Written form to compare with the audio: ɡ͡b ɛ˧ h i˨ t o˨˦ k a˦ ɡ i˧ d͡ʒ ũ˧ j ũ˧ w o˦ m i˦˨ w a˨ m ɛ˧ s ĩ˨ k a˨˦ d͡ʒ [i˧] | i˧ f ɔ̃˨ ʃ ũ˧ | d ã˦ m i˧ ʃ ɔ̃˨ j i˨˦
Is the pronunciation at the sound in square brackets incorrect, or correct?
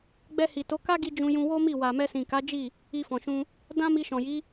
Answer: incorrect